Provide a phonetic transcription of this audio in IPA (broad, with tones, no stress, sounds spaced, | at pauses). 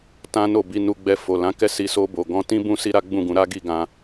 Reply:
t ã˦ n o˦˨ b i˧ n u˧ ɡ͡b ɛ˧ f o˨ l ã˨˦ k ɛ˦˨ s i˧ s o˧ b o˨ ɡ ɔ̃˧ t ĩ˦ b ũ˦ s i˦ ɾ a˦ ɡ͡b ũ˦˨ ɡ ũ˨˦ ɾ a˦ ɡ i˦˨ ɡ ã˧